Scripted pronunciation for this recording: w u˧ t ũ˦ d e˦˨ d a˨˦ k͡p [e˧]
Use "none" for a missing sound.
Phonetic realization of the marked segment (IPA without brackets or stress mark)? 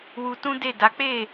e˦˨